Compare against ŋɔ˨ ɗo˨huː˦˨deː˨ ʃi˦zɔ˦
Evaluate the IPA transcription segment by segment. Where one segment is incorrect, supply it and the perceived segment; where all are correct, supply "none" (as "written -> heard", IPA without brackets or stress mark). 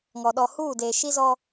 o˨ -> ɔ˨